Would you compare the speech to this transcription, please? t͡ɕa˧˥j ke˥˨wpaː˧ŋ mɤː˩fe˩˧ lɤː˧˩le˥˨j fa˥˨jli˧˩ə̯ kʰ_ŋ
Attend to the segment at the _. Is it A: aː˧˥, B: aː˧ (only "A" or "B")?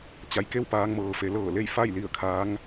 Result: A